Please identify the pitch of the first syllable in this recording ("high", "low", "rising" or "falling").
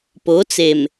rising